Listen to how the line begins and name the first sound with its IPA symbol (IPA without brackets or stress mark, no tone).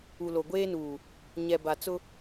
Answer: u